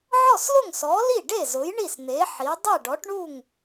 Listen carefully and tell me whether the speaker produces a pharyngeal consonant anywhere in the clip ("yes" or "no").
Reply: yes